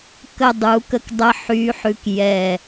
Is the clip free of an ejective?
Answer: yes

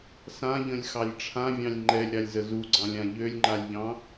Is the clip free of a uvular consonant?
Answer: yes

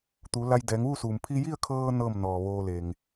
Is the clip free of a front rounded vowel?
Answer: yes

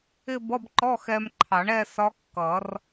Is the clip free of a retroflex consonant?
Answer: no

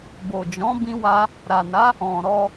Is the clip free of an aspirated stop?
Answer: yes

